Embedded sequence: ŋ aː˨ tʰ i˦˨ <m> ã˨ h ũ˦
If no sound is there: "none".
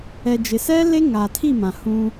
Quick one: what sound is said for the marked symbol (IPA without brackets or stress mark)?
m